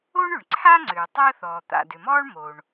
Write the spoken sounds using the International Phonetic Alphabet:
o˥ ɳ ʏ˩ ɳ ǀʰ a˥ ŋ͡ǀ ʏː˩ tˤ əː˥ θ ɔː˩ t̪ a̰˩ d ʏ˩ m ɔː˥ ɳ m o˩ ɳ

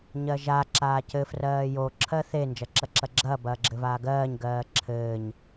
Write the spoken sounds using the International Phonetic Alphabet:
ɲ ɜ ʒ a ǁ aː c ɘ f r ɜː j o ǁʰ ɜ θ e n d͡ʒ ɐ ǁ ɐ ǁ ɐ ɡ͡ǁ ɐː b ɐː ɡ͡ǁ ɘ v aː ɡ ɜː ɲ ɡ ɜː ǁʰ ɘː ɲ

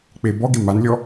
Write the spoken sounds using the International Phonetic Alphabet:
k͡p e b ɔ ɡ e m a n lʲ ɔ

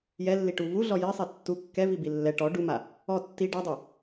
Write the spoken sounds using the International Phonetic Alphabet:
j ɛ lː i ʈ u v u ɮ ɔ j i sˤ i tː u kː ɛ v i b i lː ɛ ʈ ɔ ɖ u m a | ɔ tː i ɖ a dˤ i

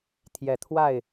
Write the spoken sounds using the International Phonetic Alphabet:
t̪ʰ j ɛ˨˩ t̪ʰ w a˥˩ ɪ̯

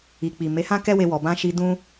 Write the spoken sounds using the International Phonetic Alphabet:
i˨ k͡p i˨ m e˨˦ h ã˦ k ɛ˦ w e˧ w ɔ˨ b ã˧ ʃ i˧ d ũ˦

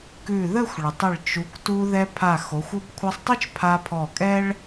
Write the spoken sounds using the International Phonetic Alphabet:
k ʉ˧˩ ð ə˥˧ xʷ ɭ ə˩˧ tˤ ə˧˩ ɭ t͡ʃ u˩˧ k t u˧ ð ɛ˧ pʰ a˧˩ x o˩˧ xʷ o˧ b kʷʰ a˧ sˤ tˤ ʉ˥ t͡ʃ pʰ a˧ pʰ ɔ˧˩ kʼ ɛ˥ ɭ

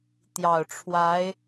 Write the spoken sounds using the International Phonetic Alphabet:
t̪ j ɑ˨˩ ʊ̯ ʈ͡ʂʰ w a˧˥ ɪ̯

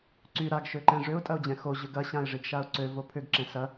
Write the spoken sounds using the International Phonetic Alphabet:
ǀ y ɾ a ɡ ʃ ø ǃ ɛ̃ ʐ ʏ ʊ̯ tʼ ɐ ʊ̯ d͡ʑ ɛ̃ x o ʑ ʏ ɡ ɐ ɕ ã ɪ̯ ʐ i ɡ ʃ a ʊ̯ ǀ ø v o pʰ ʏ ɡ ǁ ɛ̃ s ɐ

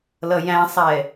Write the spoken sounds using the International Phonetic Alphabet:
l ʌ j æ̃ sˤ ɛ

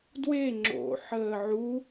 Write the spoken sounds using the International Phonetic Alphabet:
d w e ŋ͡ǁ o̰ ħ əː ʕ u

